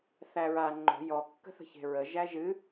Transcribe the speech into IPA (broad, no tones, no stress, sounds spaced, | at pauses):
θ æ ɹ a ŋ͡ǃ o̤ j ɔ kː ə̤ θ ə̤ ç e̤ ɹ ə ʒ æ ʒ ɨ